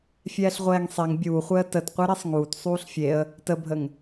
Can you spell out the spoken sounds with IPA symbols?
fʲ ɛː ɬ ʁʷ ɛː ŋ sˤ ɛ ŋ bʲ uː χʷ ɛ ə̯ t ə t qʷ e ɾ e sˤ ŋ uː t sˤ uː ɬ fʲ e ə̯ | t ə bʱ ə ŋ

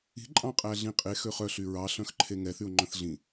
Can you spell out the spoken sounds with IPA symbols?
i̤ ǃʼ ɑ̃ qʼ æ ɮ ĩ qʼ e x ø χ œ ɬ y ɹ ɑ ɬ œ̃ x ǃʰ e ŋ ɛ θ y ʊ̯ ŋ͡ǃ œ̃ θ ɮ ĩ

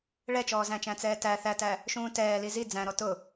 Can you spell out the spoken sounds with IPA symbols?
ɭ ɛ t͡ʃ ɔː z æ̃ t͡ʃ æ̃ t͡s ɛː t æ θ æ t æ | ʃ ũː t ɛː l i z i d͡z æ̃ ɾ ɔ t ʊ

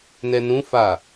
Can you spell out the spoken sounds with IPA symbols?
n ɛ n ũ f a

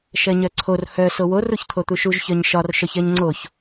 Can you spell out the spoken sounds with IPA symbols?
ʃ ɜ ɲ œ ǀʰ o r h œ s o w o r u ç t̪ʰ o t̪ u ʃ u ʒ ç œ ɲ ʃ ɒ r ʃ œ ç ɜ ɲ ŋ͡ǀ o ç

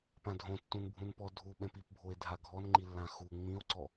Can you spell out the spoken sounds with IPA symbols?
p ã dʱ õ tː ũ n bʱ ũ n p ɔ dʱ u ɓ ɛ̃ p i p bʱ o e̯ dʱ a ɡʱ ɔ n ŋ͡ǃ i lː ã x u ŋ͡m ĩ o̯ ǀ ɔ

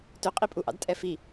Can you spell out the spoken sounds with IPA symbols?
t ɵ qʼ i pʼ u ʔ ɑ̰ d tʼ ɛ f i

